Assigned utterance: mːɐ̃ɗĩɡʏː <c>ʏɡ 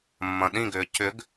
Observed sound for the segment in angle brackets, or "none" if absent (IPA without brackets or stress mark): c